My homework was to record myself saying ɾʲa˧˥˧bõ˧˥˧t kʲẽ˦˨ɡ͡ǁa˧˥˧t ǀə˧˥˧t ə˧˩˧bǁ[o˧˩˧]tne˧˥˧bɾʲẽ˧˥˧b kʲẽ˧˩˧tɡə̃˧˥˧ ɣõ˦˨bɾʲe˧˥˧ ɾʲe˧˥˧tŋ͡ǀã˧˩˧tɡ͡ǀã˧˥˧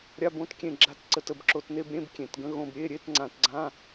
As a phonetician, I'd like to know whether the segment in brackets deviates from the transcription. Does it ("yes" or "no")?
no